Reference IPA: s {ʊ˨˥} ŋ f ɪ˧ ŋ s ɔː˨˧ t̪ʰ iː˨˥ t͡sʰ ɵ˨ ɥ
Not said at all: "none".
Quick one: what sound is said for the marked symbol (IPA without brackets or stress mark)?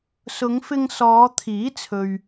ʊ˨˧